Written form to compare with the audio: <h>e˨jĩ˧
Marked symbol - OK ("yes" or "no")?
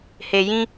yes